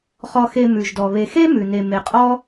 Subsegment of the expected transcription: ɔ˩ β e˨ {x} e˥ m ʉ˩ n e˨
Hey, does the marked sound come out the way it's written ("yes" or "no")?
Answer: yes